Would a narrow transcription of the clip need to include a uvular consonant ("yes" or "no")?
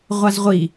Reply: yes